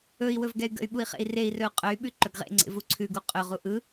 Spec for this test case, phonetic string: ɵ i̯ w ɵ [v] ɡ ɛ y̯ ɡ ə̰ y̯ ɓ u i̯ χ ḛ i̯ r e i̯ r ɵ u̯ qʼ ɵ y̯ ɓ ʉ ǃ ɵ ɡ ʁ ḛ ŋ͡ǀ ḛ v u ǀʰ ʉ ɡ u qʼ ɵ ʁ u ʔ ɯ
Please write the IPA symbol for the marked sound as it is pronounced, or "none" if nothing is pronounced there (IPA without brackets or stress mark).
v